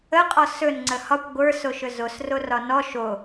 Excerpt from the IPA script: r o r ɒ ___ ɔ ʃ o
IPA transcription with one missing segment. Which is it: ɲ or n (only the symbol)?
n